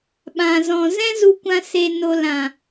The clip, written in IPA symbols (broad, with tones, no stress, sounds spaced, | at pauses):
ɓ ã˨ z ɔ̃˨ z ɛ̃˦ z u˧ kʷ ã˧ s e˨ n o˨ l ã˨